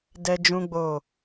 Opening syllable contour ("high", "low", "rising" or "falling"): high